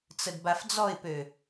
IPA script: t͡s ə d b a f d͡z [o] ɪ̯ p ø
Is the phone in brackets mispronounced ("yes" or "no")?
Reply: yes